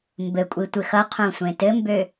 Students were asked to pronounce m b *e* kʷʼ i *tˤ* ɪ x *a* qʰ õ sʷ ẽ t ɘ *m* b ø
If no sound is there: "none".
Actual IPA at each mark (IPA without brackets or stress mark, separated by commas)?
ɘ, tʷ, ʌ, m